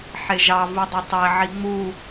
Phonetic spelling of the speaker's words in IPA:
ħeʒɑ vudˤytˤe ʕiŋ͡mu

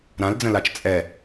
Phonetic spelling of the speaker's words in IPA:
ɾãld͡zə̃lat͡ʃ t͡sʼɛ

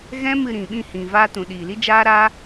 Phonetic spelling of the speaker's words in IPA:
ɣɛ̃˦mɨ˧ɾĩ˨ ɓĩ˦˨hĩ˨ vaː˧tũ˨ ɗiː˨li˦d͡ʒaː˦ɾaː˦

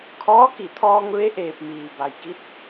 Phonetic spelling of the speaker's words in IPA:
kʰɔː˧˥ki˧˩t̪ʰɔː˧ŋ ʋe˧˥ʔeː˧˩p̚ miː˩ba˩jki˧˥t̚

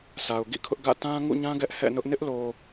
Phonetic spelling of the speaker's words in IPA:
sʰa˨ʊ̯ɡḭ˦˨kʰʊ˦ʔɡä̰˦˨ tã˦ŋṵ˦˨ɲã˦ ɡɛ˦ʔhɛ̰˦˨nʊ˦ʔ nɪ˦ʔlo˨

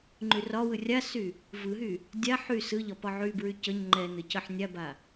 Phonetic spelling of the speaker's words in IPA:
ŋ͡ǃyrɒwɯ rʲasy | vɯɦy | dʲa ħy sɯʎɒ pɒʕybɹy cəɲ ŋ͡ǃɛnɯ cəħnʲaba

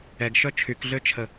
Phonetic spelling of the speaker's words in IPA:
ɛɡʃœ t͡ʃʰykɮøt͡ʃʰə

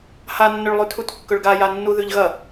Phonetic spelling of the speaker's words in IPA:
hanːɵɭlˠʉtʰut kːɵɭɡajanːu ðʉʎɣɐ

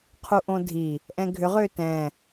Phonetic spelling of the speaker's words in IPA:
qʰuʔõdʱi | ʔɛ̃ɡʱʏʁ ʏːtɛ̃

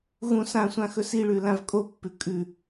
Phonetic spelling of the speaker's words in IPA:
ɣũ sãsʷãxɵ siɭʉlãv kʼopːʉ kʼʉ

